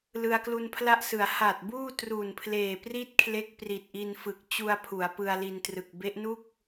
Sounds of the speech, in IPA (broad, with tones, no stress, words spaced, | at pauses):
lɯ˧a̯klu˧npʰla˥˩ʔsɯ˩˦a̯ ha˨˩t̚buː˥˩ tru˨˩npʰleː˨˩pri˥˩t̚kʰle˦˥k̚ pri˨˩t̚ʔi˧nfɯ˨˩k̚ t͡ɕu˧a̯ pʰu˩˦a̯pɯ˧a̯li˧ntrɯ˨˩k̚ be˦˥ʔnu˥˩k̚